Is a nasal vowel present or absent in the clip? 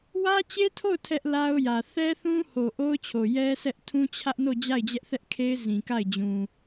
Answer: present